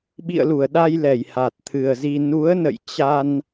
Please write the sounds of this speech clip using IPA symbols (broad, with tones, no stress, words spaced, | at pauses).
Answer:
ɓḭ˧˨ə̯lu˧˩ə̯ɗa˧j lɛ˧˩jha˨˩t̚t̪ʰɨ˨˩ə̯zi˧ nu˨˦ə̯nə̰˧˨j t͡ɕa˧n